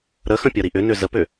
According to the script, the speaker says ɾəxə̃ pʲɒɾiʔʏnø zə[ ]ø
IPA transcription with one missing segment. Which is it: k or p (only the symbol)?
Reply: p